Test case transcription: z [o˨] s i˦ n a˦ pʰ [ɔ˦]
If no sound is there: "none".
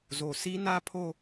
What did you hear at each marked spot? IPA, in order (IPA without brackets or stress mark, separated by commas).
o˨, o˦